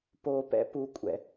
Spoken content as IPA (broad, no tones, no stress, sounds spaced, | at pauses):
p o p ɛ̰ p u kʷʼ ɛ̰